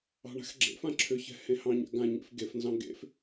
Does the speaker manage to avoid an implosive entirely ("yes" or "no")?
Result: yes